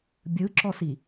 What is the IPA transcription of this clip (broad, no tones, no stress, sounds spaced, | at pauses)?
bʲ ɯ ǁ ɔ s i